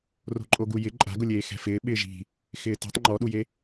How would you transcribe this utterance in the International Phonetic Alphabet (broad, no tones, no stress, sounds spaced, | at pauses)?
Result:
r o̤ ǃʼ o ɡ u j ɪ ǃʼ a̤ ɡ ʊ lʲ eː x ɛ̤ f ɪː ɓ ɪː ʒ i̤ | x ɪː t i̤ tˤ ŋ͡ǃ ɔ ɗ u j e